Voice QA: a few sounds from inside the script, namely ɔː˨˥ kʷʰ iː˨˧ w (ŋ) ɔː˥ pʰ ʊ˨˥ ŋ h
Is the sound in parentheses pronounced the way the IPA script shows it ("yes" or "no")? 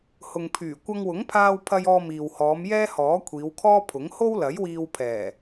no